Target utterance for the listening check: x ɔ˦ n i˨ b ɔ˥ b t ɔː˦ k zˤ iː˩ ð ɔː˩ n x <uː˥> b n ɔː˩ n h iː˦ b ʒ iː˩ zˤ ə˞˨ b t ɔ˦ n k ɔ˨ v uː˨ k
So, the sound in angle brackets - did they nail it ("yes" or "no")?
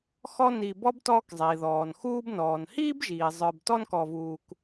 no